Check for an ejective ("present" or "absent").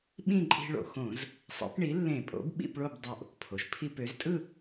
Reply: present